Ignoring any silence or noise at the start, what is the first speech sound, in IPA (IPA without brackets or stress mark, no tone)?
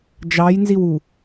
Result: d͡ʒ